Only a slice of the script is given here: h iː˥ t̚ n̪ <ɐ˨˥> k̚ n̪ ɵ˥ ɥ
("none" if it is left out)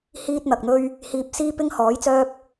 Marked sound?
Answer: ɐ˨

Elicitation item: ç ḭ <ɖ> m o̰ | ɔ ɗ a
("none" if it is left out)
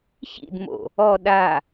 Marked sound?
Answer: d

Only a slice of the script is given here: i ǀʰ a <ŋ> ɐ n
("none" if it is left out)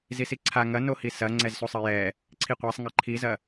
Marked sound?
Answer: ŋ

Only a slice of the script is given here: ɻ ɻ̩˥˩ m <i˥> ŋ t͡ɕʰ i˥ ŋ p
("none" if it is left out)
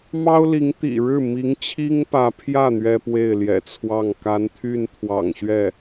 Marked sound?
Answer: i˧˥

